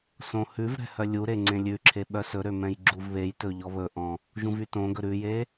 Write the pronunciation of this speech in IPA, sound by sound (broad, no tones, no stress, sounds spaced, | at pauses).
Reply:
s õ h ʉ v ɾ ɛ̤ h œ lʲ u ɾ e ŋ͡ǀ ẽ lʲ ʉ ǁʰ e ɓ œ s ɵ ɾ ø m ɛ̃ j ɡ͡ǁ u v β e j t ɵ ʎ ɔ β ɵ ʔ ɔ̃ | ʒ ũ v y t õ ɡ ɵ ɾ ʉ j e